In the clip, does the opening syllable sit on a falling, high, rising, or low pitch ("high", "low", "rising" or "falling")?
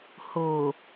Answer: low